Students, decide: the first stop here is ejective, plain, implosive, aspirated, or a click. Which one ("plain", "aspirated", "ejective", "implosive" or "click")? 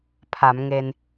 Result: aspirated